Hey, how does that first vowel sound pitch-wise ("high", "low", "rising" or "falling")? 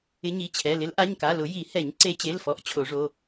rising